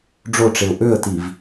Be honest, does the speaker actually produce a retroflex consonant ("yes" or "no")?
yes